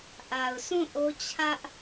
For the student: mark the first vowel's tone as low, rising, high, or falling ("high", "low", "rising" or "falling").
low